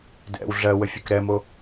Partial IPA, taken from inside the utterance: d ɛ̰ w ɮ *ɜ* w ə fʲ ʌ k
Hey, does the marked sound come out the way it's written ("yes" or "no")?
yes